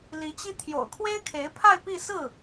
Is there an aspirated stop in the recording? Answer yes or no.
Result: yes